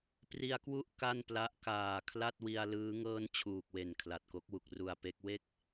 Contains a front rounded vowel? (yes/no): no